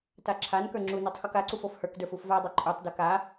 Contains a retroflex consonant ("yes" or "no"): no